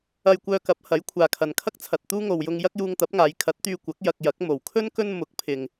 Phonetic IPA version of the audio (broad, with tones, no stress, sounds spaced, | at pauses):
ɐ˧ j kʷ œː˧ k ɐ˨˥ p̚ h ɐ˨˥ j kʷʰ aː˨ kʰ ɐ˨ n kʰ ɐ˥ k̚ t͡sʰ ɐ˨ t̚ t̪ uː˥ ŋ o˨ w j ʊ˧ ŋ j ɐ˥ k̚ j uː˧ ŋ t̪ ɐ˨˥ p̚ ŋ aː˨˧ j kʰ ɐ˨˥ t̚ t̪ yː˧ kʷ ɐ˨˥ k̚ j ɐ˧ k̚ j ɐ˨˥ k̚ m o˨ w kʰ ɵ˥ n k ɵ˥ n m ʊ˨˥ k̚ pʰ ɪ˨ ŋ